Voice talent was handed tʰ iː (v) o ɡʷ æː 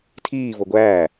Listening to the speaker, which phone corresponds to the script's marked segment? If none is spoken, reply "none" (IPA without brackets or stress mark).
v